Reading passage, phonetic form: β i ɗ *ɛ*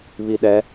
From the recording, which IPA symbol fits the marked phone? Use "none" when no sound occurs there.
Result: ɛ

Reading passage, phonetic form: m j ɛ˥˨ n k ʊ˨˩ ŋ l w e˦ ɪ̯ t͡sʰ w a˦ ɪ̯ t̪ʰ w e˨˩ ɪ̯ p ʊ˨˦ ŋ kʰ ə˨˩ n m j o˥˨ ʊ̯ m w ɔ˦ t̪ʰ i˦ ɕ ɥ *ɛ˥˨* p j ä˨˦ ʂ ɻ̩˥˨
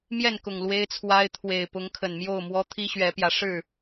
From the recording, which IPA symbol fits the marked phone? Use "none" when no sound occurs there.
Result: ɛ˨˦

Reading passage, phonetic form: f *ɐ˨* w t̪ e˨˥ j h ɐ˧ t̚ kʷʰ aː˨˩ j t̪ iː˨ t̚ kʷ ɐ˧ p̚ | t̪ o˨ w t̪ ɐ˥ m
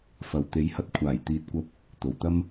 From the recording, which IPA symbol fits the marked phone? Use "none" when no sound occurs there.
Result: ɐ˨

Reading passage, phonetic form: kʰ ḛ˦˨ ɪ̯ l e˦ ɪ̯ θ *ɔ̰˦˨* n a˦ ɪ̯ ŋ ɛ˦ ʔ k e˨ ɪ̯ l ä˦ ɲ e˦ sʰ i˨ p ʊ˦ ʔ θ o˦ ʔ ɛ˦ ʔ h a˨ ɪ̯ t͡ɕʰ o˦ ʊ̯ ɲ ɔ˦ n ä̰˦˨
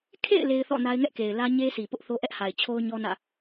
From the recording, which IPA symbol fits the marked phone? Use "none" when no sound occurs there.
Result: ɔ̰˦˨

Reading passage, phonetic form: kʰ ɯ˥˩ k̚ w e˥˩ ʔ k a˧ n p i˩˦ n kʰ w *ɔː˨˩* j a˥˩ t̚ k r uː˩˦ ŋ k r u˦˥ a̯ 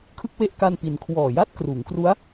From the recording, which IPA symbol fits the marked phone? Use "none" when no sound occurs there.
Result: ɔː˨˩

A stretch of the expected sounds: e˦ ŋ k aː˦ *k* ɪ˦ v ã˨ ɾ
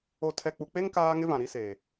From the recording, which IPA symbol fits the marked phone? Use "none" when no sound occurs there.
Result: ŋ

